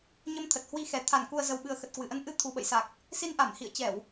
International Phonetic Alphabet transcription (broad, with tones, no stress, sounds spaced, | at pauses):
ɲ ə˧ m t̪ʰ ə˨˩ t̚ h w i˧ x ɛ˨˩ t̪ʰ a˧˩ n k u˨˩ ə̯ z ə˨˩ w ɓ ɨ˨˩ ə̯ x ə˨˩ t̚ k w ɨ˧˩ ʔ ə˧ n ʔ ɨ˧ t̪ʰ u˨˩ ɓ ə̰˧˨ j s a˨˩ k̚ | s i˧ n ʔ a˧˩ m h ḭ˧˨ ə̯ t͡ɕ ɛ˧˩˨ w